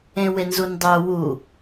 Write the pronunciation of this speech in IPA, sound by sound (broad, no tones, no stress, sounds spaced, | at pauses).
ẽ w e n z u n dˤ œ w u